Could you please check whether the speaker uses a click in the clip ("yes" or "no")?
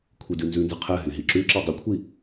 yes